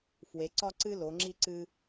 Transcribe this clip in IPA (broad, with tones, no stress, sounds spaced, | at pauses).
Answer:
f w e˩˧ ǀ ɒ˦ ǀ ɨ˦ l o˩˧ ŋ͡ǁ i˦ ǀ ɨ˦